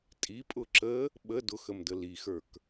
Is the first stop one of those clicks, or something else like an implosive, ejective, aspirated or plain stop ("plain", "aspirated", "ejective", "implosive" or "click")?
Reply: ejective